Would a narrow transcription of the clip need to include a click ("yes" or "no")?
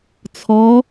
no